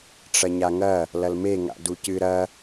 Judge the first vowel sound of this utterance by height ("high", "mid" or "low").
low